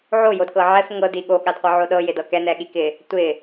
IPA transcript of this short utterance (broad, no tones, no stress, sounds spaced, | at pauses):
ʕ o j o d k ɤ ʕ ɛ f ŋ ɤ d i ɠ o ɠ a d qʷ ɤ ʕ o ɗ ɤ j ɪ d ɤ k ɛ n ɛ ɠ i k ɪ | tʷ ɪ